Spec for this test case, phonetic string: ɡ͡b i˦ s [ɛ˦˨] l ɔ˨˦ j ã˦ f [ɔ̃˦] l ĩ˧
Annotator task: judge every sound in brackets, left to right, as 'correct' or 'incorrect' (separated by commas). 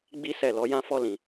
correct, incorrect